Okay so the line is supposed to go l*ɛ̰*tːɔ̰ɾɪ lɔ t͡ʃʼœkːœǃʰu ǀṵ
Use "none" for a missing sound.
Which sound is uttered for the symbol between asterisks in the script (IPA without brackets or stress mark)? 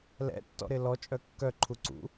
ɛ̰